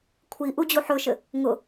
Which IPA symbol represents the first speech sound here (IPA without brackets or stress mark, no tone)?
kʷʰ